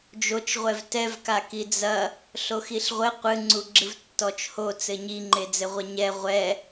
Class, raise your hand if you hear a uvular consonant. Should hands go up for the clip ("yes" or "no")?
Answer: yes